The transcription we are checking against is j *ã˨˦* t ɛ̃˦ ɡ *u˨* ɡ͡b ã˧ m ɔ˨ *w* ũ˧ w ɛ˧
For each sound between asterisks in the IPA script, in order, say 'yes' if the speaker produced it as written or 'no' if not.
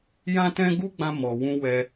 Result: no, no, yes

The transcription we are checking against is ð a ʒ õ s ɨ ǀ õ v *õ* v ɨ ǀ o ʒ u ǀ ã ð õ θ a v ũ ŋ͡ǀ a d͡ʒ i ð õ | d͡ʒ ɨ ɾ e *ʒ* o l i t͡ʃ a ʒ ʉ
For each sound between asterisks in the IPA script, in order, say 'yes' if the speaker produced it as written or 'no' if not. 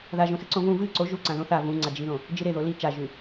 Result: no, no

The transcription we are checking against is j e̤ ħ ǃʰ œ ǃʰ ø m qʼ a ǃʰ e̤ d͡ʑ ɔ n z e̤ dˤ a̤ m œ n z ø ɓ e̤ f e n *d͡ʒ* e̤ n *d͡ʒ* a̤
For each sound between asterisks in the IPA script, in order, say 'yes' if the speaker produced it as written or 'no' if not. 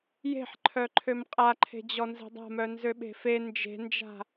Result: yes, yes

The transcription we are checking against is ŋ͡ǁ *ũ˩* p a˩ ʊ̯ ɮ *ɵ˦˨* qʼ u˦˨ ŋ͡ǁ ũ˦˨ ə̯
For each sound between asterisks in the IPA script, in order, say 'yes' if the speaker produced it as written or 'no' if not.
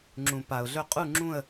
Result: yes, yes

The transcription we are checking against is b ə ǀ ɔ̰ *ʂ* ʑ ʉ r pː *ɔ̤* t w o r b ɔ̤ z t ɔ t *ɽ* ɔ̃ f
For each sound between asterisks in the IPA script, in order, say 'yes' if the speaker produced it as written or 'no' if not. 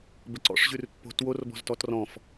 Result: yes, no, no

